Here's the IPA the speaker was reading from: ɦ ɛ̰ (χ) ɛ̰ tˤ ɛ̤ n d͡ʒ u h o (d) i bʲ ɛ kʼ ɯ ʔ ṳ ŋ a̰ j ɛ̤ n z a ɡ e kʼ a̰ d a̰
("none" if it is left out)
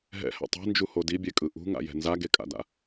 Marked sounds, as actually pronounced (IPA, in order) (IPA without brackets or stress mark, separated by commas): h, d